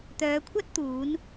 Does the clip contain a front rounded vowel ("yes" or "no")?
yes